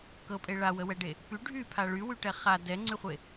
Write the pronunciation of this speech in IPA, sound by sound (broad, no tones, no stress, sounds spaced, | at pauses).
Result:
k ɤ pʼ e ɭ a w ə w ɛ ɖ e | p y ɖʱ y pʰ a ɭ y w y ʈ ɛ χ a d ɛ ŋ͡ǀ y χʷ e